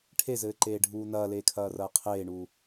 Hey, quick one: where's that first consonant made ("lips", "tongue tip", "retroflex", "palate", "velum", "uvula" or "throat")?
retroflex